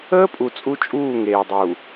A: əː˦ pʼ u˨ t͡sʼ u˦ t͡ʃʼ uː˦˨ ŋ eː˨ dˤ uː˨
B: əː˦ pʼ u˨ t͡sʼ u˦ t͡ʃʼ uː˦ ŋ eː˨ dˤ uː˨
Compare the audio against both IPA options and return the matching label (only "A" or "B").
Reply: A